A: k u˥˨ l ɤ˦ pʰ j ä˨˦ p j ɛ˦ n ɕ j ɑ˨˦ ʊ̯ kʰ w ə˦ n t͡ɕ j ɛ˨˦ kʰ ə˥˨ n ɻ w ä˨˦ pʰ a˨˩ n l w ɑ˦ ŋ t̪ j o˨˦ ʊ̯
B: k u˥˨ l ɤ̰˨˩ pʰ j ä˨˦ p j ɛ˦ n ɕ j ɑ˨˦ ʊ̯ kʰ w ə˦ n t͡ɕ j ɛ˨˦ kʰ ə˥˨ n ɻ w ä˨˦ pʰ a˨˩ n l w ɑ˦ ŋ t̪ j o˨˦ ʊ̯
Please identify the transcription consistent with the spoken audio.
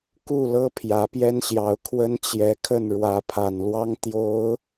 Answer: A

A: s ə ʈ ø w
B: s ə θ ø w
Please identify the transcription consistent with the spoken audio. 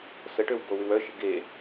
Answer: A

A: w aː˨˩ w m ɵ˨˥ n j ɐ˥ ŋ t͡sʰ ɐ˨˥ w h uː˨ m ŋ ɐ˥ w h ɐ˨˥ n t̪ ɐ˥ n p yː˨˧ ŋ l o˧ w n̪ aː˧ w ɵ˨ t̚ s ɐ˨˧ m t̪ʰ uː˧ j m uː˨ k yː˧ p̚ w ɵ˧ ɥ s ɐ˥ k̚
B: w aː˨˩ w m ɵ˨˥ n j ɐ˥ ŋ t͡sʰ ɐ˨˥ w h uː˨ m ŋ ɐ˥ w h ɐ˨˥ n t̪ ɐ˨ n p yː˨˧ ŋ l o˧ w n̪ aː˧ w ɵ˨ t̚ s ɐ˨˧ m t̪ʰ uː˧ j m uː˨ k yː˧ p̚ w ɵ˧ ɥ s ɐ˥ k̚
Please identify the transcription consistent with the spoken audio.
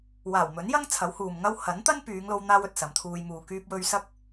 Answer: A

